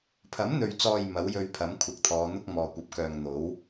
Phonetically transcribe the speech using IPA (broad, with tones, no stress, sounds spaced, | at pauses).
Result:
pʰ ɐ˨˥ m n̪ ɵ˨ ɥ t͡s ɔː˨ j m ɐ˨˥ w j ɵ˧ ɥ pʰ ɐ˨˥ m kʷʰ ɐ˨ k̚ t̪ʰ ɔː˨˧ n̪ ʊ˥ k̚ m ɔː˨ kʷ ɐ˨˥ p̚ k œː˨ ŋ n̪ o˨˥ w